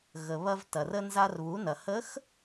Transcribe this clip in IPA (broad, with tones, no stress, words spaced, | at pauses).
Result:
ɣə˩ βɐ˧vtɐ˩r ə˧nza˧r βu˩˧nɐ˩hə˧˥x